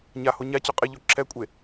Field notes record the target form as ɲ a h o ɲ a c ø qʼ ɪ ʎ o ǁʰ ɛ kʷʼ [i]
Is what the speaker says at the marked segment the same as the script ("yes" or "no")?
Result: no